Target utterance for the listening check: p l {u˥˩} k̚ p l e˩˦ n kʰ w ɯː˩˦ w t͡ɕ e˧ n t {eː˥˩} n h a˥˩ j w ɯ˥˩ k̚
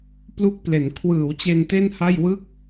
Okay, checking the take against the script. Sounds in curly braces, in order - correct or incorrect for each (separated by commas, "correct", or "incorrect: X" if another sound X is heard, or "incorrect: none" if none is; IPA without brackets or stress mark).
correct, incorrect: e˥˩